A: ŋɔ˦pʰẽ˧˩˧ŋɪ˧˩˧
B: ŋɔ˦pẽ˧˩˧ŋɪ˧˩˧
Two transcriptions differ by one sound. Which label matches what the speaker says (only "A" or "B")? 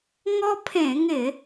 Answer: A